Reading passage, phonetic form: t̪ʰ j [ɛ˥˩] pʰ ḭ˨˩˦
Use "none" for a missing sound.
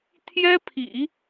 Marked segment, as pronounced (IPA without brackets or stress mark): ɛ˥